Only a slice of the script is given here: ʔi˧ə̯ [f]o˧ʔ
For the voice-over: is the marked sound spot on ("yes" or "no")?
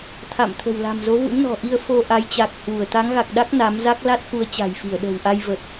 yes